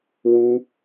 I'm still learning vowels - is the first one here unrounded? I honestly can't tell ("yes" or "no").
no